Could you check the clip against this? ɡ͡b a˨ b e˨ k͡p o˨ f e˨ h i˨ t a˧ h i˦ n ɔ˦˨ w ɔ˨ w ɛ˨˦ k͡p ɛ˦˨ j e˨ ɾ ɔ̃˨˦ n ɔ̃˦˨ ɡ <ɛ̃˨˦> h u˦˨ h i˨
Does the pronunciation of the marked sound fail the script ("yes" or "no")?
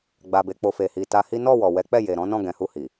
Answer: no